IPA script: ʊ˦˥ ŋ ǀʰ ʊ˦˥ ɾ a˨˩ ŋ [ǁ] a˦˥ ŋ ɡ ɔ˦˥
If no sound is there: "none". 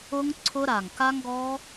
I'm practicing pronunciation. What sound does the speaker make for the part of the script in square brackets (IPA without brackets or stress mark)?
k